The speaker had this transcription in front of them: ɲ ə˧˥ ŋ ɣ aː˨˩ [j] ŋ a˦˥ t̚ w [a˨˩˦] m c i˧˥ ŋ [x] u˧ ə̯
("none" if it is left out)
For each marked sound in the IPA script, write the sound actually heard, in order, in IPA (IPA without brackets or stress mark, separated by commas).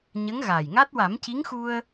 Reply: j, a˨˩˦, x